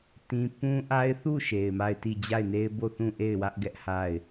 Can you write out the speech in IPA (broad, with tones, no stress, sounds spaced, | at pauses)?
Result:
t ĩ˦ p ũ˦ ʔ a˦ ɪ̯ θ u˦˨ ʃ e˨ ɪ̯ m a˦˨ ɪ̯ t i˦˨ d͡ʑ a˦˨ ɪ̯ n e˦ ɪ̯ b o˦˨ θ ũ˦˨ ʔ e˦˨ ɪ̯ w ä˦ ʔ ɡ ɛ˦ ʔ h a˦˨ ɪ̯